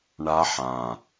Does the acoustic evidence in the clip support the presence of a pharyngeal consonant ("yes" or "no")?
yes